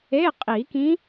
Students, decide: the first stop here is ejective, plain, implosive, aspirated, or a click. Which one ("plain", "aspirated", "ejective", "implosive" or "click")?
ejective